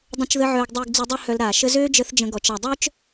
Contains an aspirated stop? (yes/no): no